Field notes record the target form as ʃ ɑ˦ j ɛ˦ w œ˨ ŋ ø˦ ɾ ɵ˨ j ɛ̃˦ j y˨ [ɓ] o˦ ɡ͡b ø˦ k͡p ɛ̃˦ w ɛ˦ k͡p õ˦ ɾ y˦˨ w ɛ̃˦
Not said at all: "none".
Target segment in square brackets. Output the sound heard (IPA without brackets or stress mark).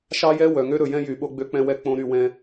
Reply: ɓ